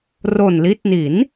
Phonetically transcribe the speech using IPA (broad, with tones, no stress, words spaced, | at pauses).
ro˨˩nli˦˥t̚ ni˩˦n